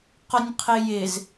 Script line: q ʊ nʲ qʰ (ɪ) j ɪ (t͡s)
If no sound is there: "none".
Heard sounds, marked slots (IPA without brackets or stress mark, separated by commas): ɪ, z